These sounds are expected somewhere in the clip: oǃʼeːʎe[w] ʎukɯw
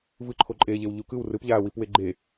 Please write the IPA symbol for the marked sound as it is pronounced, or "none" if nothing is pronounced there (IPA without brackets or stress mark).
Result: w